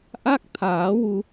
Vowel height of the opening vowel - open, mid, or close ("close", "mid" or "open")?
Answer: open